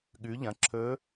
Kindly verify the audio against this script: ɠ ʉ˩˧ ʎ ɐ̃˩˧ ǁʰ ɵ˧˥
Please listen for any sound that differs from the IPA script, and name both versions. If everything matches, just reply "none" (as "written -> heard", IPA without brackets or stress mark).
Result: none